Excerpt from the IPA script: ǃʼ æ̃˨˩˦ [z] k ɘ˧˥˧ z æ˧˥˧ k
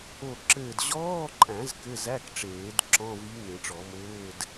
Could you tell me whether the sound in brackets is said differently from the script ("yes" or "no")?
no